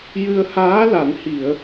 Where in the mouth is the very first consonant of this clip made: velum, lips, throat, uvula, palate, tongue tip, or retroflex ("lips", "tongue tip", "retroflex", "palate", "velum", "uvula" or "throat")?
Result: palate